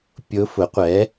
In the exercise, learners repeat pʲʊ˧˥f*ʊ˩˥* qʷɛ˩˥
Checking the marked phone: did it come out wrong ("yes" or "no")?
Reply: no